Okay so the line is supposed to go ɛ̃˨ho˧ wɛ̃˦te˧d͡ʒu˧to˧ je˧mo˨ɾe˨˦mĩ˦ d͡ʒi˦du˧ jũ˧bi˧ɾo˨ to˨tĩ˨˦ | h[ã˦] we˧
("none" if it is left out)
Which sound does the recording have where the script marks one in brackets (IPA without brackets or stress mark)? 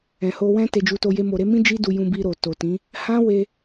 ã˦